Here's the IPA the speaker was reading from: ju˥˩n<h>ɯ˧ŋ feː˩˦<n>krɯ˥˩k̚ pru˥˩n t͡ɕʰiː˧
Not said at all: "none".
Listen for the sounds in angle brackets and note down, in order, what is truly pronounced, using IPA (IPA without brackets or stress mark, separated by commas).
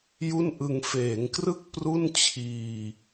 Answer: ʔ, ŋ